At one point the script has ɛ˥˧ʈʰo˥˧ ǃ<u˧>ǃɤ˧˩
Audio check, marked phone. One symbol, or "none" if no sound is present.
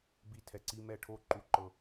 u˧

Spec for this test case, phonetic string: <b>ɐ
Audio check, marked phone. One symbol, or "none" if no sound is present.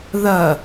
ð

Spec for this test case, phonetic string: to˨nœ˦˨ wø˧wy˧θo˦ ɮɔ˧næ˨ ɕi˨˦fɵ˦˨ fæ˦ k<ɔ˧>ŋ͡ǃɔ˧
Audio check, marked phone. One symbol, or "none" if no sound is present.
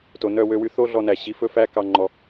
ɑ˧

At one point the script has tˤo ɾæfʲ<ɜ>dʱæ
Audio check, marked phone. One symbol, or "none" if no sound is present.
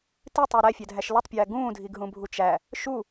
æ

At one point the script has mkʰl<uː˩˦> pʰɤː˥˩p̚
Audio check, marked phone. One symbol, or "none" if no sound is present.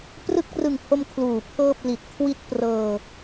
uː˩˦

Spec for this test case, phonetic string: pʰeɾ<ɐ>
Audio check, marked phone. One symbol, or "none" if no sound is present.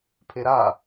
a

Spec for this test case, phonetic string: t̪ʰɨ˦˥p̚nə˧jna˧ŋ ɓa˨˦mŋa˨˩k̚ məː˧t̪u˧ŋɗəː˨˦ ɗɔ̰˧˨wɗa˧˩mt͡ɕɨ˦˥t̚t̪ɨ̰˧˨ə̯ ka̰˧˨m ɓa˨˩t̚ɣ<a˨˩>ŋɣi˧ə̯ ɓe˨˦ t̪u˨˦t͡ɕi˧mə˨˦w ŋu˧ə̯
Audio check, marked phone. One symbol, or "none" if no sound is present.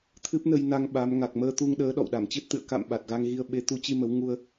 a˧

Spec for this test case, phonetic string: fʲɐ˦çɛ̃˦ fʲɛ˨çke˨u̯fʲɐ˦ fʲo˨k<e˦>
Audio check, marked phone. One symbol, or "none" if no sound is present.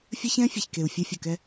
ɛ˦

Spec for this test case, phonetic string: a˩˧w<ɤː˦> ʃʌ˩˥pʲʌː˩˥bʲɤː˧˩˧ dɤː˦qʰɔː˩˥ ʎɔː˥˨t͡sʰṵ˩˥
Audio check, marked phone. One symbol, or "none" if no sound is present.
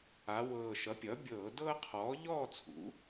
ɤː˨˩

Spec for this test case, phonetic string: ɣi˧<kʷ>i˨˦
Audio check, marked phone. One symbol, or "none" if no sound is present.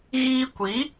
kʷ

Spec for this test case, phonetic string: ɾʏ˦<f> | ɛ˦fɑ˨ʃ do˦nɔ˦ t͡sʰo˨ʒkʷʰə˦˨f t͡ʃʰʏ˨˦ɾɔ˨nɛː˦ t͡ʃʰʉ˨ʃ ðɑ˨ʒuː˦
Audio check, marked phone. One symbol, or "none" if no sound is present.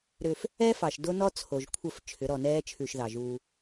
f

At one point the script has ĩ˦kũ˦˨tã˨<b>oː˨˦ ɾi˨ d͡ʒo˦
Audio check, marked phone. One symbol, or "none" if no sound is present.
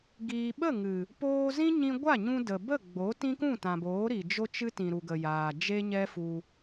b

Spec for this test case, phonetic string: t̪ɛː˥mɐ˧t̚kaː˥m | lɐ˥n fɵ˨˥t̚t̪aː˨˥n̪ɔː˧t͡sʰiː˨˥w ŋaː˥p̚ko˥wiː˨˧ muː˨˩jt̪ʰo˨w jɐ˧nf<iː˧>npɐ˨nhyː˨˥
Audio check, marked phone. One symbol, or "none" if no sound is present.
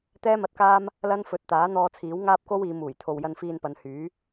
iː˧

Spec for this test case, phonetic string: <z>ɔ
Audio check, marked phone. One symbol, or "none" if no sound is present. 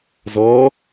z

